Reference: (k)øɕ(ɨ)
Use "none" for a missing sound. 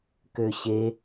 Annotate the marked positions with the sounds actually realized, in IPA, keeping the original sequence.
k, e

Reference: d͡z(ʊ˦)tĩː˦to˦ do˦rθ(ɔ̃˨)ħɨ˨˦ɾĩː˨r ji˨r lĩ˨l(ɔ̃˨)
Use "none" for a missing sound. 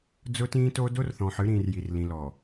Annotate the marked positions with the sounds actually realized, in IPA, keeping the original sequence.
ʊ˦, ɔ̃˨, ɔ˨

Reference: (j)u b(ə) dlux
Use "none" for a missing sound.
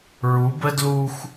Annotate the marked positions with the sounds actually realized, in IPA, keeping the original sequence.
ɹ, ə

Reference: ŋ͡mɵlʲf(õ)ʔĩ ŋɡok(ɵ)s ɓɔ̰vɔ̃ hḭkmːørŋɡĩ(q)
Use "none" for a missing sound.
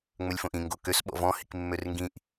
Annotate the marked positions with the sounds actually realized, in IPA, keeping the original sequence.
õ, ø, ʔ

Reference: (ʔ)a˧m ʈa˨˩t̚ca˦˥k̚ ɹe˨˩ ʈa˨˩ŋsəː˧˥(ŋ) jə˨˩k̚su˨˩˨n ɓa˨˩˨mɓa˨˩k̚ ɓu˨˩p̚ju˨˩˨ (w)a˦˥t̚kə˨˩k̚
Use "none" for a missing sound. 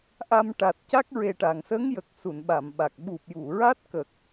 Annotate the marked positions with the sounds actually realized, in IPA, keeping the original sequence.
ʔ, ŋ, ɹ

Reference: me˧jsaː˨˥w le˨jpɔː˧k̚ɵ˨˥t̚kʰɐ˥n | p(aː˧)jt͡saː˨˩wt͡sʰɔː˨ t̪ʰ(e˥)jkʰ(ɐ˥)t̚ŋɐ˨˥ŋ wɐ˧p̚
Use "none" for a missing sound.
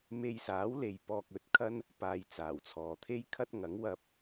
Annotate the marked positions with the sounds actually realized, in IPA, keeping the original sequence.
aː˧, e˥, ɐ˥

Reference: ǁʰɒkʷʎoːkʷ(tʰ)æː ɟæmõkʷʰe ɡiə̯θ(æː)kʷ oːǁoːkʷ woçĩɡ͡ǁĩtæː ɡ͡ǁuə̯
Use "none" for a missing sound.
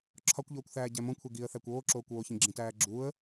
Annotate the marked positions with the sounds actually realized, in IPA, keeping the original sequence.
θ, æ

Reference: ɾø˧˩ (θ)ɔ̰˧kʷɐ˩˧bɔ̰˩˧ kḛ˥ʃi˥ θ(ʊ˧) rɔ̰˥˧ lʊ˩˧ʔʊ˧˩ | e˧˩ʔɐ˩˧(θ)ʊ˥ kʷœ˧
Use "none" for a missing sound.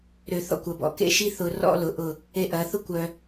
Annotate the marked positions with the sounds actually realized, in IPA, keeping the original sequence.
θ, ʊ˧, θ

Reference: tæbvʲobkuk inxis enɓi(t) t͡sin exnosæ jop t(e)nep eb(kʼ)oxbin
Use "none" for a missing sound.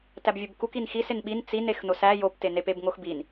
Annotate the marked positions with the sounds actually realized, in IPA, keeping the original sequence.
n, e, ŋ

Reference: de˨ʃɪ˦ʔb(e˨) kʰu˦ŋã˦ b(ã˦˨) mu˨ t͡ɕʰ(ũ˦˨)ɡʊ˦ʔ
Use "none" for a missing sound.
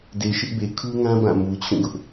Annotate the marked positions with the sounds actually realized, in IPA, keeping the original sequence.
e˨, ã˦˨, ũ˦˨

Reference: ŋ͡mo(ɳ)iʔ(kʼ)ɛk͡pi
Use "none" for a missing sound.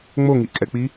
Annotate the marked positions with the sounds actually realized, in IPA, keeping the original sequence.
ŋ, kʼ

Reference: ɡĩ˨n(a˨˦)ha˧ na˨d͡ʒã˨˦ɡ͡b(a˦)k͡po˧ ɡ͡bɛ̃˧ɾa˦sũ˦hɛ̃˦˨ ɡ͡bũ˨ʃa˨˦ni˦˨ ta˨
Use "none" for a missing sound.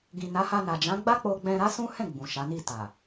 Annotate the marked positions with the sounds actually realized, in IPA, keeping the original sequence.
a˨˦, a˦

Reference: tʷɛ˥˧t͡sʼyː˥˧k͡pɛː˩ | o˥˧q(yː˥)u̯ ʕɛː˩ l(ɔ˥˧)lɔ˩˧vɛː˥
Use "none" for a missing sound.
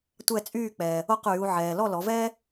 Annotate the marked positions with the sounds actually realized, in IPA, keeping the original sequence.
yː˩˧, ɔ˥˧

